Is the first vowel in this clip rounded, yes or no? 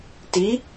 no